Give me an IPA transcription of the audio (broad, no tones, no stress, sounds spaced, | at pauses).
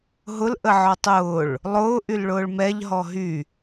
ɦ ʊ l ʔ ə ʕ ɔ tˤ ʊː ɭ | lˠ ʊː ʔ y l ɭ ʊː ɭ m ɛ ʎ ɦ ɔ ɦ y